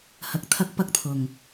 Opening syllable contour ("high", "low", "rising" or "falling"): rising